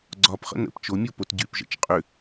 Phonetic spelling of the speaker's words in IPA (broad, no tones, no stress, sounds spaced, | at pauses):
ɡ͡ǀ ɒ p χ ə̰ n ə̰ p t͡ʃ o mʲ o p o t ɟ y p ʒ ə̰ t͡ʃ qʼ ʏ